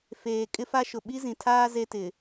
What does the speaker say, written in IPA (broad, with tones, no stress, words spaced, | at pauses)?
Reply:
feː˨ kʼɪ˦fa˦ʃʊ˨ ɓi˦zĩ˨tʰaː˦ ze˦tɪ˨